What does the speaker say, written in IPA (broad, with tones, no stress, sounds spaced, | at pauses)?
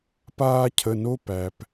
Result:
p aː˦ cʰ ə˩˧˩ n o˦ p æ˩ p